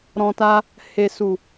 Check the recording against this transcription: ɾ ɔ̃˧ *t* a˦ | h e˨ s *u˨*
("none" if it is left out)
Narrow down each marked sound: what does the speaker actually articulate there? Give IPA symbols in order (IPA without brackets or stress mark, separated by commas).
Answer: t, u˨